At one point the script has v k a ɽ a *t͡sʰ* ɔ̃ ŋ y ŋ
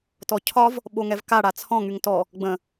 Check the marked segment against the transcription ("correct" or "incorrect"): correct